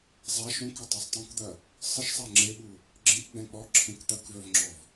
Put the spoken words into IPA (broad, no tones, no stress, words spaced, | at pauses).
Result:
zˤa ʃũkʏtˤœsˤ tˤẽkd̪ɐ | sˤəʃ sˤaŋ͡ǁeɓu | ɡ͡ǁẽkɡ͡bɛ̃ k͡pɔ ǁʰẽkt̪ɐkvœvŋ͡ǁɔv